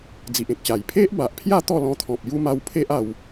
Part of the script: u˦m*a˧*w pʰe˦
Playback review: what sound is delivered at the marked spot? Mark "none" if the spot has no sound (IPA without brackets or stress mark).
a˧